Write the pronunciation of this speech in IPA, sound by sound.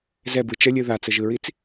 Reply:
z ɛ b ɯ t͡ʃ ə lʲ ɯ ð a t͡s ə ʒ ɯ ɹ i t͡s

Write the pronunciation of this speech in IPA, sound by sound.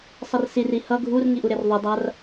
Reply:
sˤ ʌ r s i r i h ʌ ɡʱ u r ŋ i ʔ u ɾ e r ðˤ u dˤ a r

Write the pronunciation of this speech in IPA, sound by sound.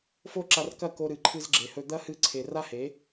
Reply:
f o˦ ǁ a˧ r k ɐ˦˨ k o˧ ɾ ɨ˨ ǃʰ ɨ˧ z ɡ͡ǁ e˨ h ɵ˧ d̪ ɐ˦ h ɨ˧ ǀʰ e˨ r a˦ h e˨˦

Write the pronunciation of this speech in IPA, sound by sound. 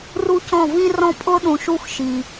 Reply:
r u˦ c ɔ̃˦˨ v ĩ˦ r ɔ̃˦ pʼ ʊ˦ ɗ ũ˨ ʃ u˦ x ʃ i˨

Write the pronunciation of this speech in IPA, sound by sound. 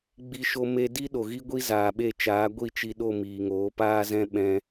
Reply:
ɡ͡b i˧ ʃ o˧ m e˧ d i˦ ɗ o˨ ɣ i˦ ɡʷ i˦ z aː˨ ɓ e˦˨ t͡ʃ aː˨˦ ɡʷ i˦˨ t͡ʃ i˧ ɗ o˦˨ m iː˨ ŋ oː˨˦ p aː˦ z ɛ̃˦ ɓ ɛ̃˧

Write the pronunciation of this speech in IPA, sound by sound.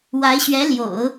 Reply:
w a˧˥ ɪ̯ ɕ ɥ ɛ˧˥ l j o̰˨˩˦ ʊ̯

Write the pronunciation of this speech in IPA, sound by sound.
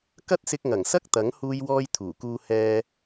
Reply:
k ɐ˥ t̚ s ɪ˧ k̚ ŋ ɐ˨˩ ŋ s ɐ˥ k̚ t̪ ɐ˨˥ ŋ h uː˧ j w ɔː˧ j t̪ʰ uː˨˩ k uː˧ h ɛː˧

